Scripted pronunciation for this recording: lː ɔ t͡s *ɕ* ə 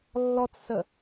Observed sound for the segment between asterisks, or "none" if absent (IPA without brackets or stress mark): s